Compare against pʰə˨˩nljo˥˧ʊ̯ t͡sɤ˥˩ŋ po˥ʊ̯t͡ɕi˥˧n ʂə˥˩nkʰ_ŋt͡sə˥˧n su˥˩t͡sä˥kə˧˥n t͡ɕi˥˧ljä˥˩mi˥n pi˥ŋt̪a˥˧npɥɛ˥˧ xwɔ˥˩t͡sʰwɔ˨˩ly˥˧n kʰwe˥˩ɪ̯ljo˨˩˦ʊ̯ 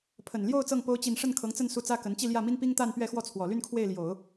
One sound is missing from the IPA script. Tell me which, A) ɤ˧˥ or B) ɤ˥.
A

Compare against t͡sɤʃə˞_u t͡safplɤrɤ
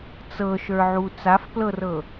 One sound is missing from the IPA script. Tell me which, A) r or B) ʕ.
B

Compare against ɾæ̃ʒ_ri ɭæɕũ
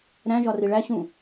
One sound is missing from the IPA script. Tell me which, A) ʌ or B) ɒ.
B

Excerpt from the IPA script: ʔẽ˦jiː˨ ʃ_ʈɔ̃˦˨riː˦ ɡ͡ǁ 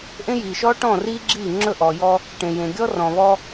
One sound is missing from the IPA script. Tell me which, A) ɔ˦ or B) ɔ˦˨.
A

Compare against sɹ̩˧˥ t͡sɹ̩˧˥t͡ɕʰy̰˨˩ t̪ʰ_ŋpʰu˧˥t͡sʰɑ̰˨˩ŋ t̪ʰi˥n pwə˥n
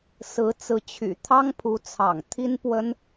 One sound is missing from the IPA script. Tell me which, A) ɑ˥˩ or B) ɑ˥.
B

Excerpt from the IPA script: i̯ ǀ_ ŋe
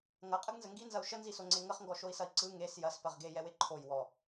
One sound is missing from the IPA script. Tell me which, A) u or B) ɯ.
B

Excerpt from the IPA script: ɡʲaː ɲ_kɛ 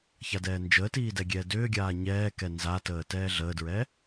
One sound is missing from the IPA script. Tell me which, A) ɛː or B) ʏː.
A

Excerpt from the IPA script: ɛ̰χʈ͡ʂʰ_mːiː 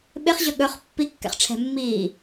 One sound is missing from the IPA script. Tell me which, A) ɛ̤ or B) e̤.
A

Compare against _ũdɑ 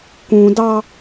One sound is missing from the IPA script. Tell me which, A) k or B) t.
A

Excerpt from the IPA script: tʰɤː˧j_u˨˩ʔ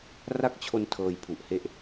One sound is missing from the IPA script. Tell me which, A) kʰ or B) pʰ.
B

